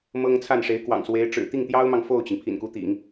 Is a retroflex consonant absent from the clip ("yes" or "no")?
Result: no